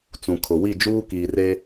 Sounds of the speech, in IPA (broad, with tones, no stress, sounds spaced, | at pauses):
t͡s ũ˨ kʰ ʊ˨ w i˦˨ d͡ʒ uː˦ k iː˨ r e˦